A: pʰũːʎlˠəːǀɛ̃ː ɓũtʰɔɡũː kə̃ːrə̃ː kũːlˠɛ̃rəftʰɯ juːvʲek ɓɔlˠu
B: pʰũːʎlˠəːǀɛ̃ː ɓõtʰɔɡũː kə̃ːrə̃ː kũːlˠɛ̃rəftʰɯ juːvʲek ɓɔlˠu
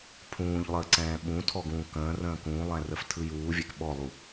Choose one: A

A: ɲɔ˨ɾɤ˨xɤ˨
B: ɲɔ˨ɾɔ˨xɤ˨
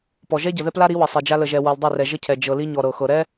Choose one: A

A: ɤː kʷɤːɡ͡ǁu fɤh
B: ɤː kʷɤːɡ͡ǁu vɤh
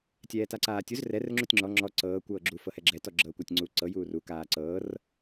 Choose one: A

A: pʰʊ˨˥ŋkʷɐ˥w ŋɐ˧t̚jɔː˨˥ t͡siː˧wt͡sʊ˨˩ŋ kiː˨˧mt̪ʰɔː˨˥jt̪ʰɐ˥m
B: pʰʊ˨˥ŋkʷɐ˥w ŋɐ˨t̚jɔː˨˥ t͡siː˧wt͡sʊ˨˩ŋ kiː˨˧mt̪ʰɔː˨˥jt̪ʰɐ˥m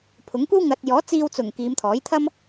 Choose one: B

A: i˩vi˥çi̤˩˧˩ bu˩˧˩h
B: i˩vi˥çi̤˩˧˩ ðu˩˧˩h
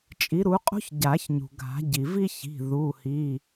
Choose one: B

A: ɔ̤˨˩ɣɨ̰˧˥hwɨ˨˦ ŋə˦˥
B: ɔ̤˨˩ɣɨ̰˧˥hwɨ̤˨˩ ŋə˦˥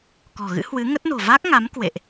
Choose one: A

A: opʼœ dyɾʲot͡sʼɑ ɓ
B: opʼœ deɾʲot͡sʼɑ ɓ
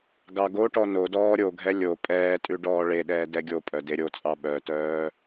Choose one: B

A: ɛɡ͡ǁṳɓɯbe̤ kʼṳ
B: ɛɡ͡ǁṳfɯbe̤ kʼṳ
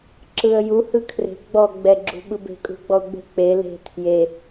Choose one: A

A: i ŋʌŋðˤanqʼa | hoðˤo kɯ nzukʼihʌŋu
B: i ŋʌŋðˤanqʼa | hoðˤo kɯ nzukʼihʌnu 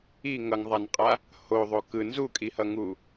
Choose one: A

